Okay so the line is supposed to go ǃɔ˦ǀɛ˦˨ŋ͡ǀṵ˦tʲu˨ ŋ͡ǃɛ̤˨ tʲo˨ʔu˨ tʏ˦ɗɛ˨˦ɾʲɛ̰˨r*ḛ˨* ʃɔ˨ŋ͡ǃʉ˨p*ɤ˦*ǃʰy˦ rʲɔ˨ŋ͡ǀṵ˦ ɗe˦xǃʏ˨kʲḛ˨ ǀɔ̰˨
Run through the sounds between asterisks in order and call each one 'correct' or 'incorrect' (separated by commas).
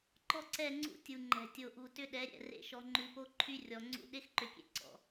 incorrect, incorrect